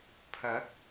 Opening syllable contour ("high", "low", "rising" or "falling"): rising